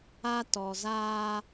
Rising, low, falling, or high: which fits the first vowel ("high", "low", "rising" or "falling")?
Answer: high